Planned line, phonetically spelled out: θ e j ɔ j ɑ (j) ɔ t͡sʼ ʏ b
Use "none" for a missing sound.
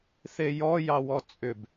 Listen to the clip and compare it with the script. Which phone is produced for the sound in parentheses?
w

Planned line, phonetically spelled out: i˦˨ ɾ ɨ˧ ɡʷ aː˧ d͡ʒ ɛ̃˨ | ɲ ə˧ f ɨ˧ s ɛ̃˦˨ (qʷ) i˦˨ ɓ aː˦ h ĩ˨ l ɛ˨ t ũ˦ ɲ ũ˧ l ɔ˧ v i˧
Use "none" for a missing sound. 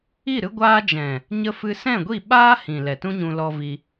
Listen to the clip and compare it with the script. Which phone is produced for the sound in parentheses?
ɡʷ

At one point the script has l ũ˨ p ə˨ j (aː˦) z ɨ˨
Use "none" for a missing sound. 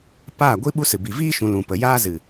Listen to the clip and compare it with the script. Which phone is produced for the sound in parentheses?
aː˦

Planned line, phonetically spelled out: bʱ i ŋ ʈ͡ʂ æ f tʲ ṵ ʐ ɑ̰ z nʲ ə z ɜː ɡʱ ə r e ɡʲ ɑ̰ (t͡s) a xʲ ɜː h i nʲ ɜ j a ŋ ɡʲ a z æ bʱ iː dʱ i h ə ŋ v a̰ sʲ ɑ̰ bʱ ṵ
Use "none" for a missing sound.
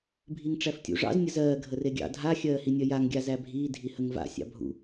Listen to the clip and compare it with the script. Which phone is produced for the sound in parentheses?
dʱ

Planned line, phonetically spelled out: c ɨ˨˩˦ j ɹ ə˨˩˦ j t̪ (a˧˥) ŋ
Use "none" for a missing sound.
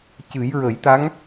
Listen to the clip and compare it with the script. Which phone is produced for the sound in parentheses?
a˧˥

